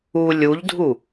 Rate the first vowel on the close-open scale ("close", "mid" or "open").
close